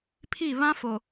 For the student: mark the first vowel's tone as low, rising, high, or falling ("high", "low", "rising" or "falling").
falling